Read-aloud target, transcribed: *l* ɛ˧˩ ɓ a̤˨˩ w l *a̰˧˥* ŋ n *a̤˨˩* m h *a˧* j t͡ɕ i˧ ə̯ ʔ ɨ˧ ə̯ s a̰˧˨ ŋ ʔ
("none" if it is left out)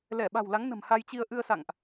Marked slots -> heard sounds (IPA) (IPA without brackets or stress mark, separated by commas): l, a˨˦, ə̤˨˩, a˧